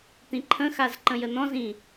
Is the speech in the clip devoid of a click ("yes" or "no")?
no